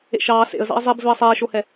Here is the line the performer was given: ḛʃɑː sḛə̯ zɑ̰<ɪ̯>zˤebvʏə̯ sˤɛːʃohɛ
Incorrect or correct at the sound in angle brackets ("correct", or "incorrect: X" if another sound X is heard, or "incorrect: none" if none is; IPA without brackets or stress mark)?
correct